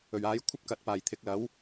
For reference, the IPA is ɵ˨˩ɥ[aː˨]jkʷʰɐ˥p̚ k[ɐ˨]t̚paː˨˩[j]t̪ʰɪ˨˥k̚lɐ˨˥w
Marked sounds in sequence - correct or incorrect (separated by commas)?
incorrect, correct, correct